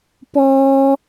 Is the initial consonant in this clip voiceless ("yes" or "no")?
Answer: yes